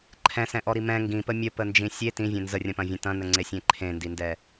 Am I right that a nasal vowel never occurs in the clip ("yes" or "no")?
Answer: no